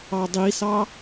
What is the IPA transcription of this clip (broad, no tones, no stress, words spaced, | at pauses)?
ɑdˤisɑ